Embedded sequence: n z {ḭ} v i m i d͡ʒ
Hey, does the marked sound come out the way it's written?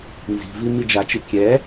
no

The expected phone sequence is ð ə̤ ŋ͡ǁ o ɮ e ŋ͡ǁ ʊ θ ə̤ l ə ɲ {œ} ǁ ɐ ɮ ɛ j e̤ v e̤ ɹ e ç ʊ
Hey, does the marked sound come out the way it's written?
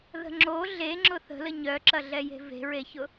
yes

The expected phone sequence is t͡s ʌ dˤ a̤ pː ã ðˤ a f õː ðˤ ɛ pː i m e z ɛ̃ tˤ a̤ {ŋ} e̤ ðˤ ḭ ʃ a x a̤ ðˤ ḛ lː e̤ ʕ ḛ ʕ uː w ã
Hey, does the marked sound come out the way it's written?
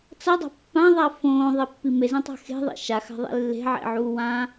no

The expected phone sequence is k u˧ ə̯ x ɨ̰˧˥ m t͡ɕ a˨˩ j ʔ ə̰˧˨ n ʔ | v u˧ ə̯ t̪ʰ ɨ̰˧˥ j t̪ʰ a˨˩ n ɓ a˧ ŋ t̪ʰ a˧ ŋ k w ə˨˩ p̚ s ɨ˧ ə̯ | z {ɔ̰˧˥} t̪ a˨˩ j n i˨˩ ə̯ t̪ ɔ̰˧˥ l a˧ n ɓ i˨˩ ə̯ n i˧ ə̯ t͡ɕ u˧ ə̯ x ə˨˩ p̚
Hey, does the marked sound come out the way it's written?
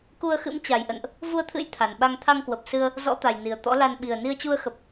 yes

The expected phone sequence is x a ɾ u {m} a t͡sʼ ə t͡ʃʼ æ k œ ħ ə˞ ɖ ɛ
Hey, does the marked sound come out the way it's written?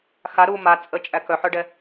yes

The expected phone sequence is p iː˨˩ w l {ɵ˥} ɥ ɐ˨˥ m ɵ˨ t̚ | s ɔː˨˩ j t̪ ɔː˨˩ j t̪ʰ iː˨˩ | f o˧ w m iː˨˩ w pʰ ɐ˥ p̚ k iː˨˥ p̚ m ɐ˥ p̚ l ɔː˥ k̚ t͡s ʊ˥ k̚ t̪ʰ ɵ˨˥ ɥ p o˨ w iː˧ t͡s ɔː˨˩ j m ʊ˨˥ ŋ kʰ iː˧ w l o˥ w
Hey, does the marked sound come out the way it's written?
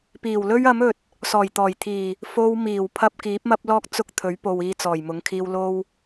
yes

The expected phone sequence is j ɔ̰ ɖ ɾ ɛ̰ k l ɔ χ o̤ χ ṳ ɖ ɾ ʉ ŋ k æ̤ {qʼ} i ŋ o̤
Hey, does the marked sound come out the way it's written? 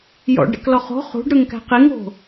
no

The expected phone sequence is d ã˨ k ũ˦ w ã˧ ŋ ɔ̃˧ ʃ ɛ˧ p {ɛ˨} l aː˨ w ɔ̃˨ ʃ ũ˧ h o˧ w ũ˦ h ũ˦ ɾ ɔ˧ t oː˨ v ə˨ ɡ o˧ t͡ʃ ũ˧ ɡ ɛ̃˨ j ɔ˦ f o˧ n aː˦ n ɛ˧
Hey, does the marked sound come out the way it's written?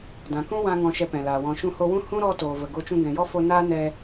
no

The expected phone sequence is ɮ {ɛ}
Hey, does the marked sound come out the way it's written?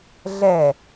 yes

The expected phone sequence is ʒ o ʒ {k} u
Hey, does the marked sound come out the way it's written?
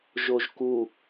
yes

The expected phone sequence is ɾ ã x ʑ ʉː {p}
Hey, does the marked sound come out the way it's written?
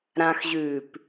yes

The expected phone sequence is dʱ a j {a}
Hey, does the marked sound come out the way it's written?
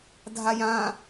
no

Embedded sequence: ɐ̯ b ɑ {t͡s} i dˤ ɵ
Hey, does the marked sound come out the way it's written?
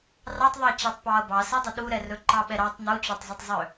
no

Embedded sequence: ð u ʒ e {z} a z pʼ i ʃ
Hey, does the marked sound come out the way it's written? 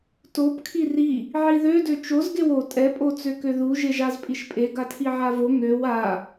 no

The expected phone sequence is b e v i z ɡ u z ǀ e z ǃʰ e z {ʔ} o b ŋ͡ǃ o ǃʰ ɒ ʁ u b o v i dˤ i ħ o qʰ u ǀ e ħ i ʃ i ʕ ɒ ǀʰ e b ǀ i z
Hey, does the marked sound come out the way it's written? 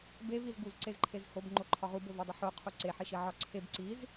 no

